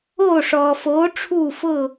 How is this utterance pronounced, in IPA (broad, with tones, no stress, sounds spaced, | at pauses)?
oː˥˩ ʂ ɔː˩ f oː˩˥ ʈ͡ʂʰ uː˥˩ f ʊ˥˩